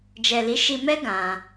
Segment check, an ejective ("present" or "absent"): absent